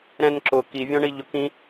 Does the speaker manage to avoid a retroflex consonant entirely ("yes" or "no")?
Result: no